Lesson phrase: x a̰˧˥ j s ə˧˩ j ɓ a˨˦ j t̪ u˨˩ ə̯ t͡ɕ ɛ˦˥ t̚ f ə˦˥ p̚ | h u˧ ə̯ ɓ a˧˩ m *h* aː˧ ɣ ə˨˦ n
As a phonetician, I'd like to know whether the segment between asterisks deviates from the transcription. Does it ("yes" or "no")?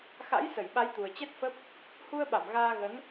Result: yes